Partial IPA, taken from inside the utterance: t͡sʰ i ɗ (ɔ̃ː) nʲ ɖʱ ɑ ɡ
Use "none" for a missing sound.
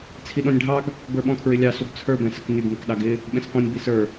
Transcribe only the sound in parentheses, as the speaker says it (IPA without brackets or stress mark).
ɔ̃